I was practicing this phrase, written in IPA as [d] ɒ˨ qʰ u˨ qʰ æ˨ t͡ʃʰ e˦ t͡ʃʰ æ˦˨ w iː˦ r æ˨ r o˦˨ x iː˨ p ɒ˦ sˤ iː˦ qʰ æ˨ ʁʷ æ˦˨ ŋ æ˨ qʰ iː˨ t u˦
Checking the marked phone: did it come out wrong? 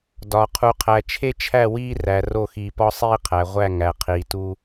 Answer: no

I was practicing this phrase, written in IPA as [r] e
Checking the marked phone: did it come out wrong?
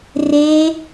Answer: no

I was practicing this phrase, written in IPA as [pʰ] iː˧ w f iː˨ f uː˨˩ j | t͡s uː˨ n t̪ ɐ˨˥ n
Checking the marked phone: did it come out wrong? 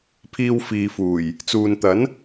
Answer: no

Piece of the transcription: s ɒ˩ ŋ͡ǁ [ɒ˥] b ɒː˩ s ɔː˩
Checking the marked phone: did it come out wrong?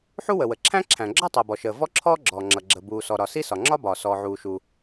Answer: no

